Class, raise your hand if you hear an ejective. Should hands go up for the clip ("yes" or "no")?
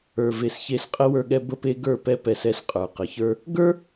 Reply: yes